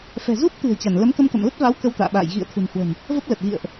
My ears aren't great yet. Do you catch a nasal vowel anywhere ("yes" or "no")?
no